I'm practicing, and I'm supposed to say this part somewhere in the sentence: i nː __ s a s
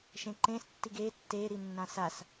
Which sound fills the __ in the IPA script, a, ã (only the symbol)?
ã